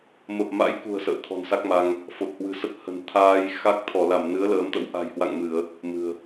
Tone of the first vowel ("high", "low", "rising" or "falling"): low